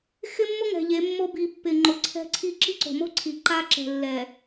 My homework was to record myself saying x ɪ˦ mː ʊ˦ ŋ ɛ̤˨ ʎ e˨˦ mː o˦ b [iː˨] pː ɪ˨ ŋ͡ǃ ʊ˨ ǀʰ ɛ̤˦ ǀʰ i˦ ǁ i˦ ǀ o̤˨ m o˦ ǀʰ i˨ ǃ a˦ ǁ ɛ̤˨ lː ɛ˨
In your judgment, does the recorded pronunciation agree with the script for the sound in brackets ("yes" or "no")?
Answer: no